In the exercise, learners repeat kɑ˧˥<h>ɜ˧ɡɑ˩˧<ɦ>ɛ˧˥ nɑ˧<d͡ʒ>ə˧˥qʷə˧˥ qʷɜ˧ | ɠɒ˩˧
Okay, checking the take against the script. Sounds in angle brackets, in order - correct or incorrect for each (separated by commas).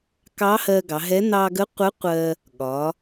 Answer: correct, correct, incorrect